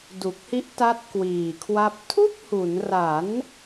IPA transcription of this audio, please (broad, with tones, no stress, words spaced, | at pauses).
du˨˩k̚hi˦˥ʔ ta˦˥t̚kwiː˨˩kʰwa˦˥p̚ tʰu˥˩k̚hu˩˦nra˩˦n